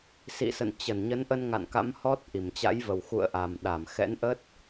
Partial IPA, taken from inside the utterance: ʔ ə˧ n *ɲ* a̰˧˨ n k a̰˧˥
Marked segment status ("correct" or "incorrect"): incorrect